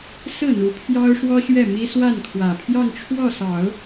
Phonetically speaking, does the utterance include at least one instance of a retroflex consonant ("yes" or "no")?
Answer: yes